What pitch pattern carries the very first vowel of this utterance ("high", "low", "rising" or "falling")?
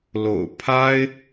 low